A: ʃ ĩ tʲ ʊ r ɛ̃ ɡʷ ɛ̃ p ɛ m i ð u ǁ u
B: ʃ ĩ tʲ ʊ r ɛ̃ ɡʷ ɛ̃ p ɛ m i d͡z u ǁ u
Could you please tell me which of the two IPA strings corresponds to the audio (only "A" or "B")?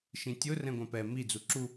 B